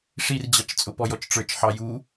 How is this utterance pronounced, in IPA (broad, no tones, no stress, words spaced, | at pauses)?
ʂird͡ʑɑt͡ʃt͡sʼʊ pɔjɔt͡ʃʈ͡ʂə˞t͡ʃ ħɑju